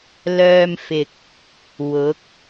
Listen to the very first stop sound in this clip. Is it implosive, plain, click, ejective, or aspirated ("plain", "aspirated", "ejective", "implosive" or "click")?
plain